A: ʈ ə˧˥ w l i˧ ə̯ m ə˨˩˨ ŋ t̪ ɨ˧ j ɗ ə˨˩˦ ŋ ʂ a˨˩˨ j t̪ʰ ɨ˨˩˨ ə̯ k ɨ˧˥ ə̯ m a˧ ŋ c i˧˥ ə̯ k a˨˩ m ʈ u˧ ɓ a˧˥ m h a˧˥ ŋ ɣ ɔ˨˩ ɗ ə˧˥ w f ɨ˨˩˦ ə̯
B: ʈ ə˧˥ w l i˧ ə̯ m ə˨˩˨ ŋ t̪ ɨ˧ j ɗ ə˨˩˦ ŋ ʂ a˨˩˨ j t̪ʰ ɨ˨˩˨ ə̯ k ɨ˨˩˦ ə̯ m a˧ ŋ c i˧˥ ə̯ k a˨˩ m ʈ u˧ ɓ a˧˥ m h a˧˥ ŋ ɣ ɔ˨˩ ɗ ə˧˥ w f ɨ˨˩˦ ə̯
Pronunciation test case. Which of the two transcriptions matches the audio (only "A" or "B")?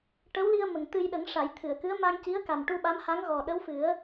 A